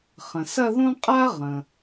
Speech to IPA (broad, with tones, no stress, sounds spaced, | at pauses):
χ ə̃˩ s ɐ˥˧ ð õ˥ qʼ a˥ ʁ ə̃˩